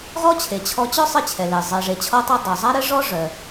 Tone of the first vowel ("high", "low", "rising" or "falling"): high